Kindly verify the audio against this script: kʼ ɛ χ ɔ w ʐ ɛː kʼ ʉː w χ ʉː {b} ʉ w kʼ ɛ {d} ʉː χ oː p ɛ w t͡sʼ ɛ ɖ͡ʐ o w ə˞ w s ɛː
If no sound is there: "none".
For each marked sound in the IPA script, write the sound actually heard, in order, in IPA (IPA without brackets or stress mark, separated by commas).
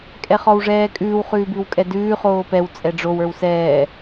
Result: b, d